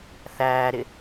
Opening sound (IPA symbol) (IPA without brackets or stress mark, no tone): θ